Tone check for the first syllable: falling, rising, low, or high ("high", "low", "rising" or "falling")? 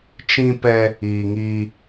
high